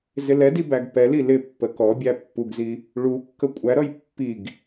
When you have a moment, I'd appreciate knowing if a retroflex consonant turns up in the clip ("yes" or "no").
yes